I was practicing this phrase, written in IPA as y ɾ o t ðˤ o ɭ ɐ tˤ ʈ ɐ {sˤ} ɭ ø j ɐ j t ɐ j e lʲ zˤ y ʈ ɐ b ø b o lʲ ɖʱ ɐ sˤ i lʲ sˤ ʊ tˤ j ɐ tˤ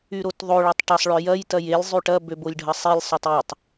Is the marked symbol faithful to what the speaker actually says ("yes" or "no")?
yes